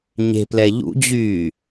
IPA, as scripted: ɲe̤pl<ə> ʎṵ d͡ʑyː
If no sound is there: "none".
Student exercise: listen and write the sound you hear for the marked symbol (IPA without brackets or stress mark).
ɛ